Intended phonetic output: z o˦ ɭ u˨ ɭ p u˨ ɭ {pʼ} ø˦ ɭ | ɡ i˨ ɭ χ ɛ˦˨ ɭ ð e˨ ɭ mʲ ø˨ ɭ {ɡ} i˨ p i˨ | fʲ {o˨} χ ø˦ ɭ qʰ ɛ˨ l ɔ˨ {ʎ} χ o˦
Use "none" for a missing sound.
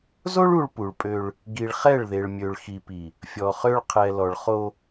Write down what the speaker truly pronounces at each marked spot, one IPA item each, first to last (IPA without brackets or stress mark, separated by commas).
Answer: pʼ, x, ɔ˨, ɭ